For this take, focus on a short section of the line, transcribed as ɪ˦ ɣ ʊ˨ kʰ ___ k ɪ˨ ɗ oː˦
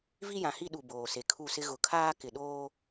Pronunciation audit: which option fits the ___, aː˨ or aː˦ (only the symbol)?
aː˦